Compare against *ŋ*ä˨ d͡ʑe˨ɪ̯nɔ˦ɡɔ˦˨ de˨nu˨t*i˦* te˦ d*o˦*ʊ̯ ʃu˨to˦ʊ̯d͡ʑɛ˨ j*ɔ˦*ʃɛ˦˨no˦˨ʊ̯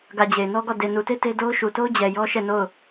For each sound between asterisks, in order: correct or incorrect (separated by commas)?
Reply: incorrect, incorrect, correct, correct